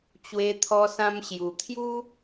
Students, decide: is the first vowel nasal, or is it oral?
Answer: oral